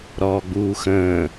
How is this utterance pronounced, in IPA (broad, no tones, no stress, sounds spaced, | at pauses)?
ɾ ɔː ɡ͡b uː x ə̃ː